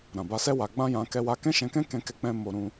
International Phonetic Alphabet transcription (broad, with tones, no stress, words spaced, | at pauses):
ɾã˨ba˧sɛ˦ wa˧ɡ͡bã˦jã˧ kɛ˧wa˧ kɛ̃˦ʃɛ̃˧kɛ̃˦ kɛ̃˧kɛ˧k͡pɛ̃˧ mo˧ɾũ˧